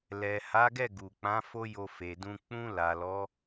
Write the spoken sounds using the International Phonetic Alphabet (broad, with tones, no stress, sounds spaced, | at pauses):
l ɛ˨ h a˨˦ ɡ ɛ˦˨ ɡ u˨ k͡p ã˨˦ f o˦ j o˧ f e˨ d ũ˧ k͡p ũ˧ l a˨ l ɔ˨˦